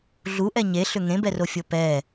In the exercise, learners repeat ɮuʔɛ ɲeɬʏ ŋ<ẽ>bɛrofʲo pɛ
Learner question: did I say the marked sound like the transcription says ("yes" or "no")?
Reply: yes